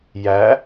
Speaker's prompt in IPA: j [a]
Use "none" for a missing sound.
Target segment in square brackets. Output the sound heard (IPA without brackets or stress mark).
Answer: æ